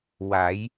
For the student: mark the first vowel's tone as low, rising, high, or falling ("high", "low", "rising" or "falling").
rising